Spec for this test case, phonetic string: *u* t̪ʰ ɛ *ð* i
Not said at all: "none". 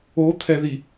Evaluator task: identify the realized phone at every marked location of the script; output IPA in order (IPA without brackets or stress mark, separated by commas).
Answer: o, ð